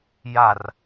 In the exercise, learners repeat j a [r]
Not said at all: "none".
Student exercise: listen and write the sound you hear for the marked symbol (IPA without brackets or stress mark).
r